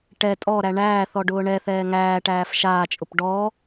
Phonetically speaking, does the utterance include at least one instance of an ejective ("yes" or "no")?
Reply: yes